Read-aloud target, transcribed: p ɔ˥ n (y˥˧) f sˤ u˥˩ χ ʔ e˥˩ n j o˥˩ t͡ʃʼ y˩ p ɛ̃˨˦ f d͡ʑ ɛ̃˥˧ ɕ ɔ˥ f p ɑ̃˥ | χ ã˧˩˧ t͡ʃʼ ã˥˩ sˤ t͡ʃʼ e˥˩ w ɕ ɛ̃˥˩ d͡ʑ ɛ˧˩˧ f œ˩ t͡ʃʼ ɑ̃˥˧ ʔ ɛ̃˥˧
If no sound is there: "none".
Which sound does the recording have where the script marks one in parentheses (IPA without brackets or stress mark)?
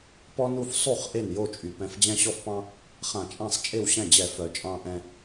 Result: u˥˧